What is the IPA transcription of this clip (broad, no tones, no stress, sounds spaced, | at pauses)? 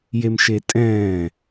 j e m ʃ e tʼ ɛ̃ː